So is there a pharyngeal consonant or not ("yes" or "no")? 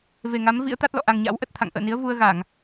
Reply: no